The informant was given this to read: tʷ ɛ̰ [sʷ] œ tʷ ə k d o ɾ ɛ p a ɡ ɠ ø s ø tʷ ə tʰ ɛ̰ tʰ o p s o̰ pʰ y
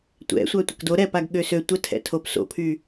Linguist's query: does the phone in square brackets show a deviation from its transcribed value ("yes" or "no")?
no